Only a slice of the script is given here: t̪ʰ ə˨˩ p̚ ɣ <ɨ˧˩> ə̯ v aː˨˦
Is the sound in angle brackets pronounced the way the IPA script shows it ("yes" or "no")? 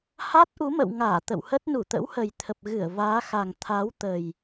yes